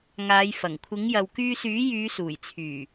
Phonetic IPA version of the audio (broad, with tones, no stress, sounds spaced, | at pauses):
ŋ aː˨˧ j f ɐ˨˩ ŋ kʷʰ ɪ˨˥ ŋ j ɐ˨ w k yː˧ s yː˨˥ j yː˨˧ s uː˨˩ j t͡sʰ yː˨˩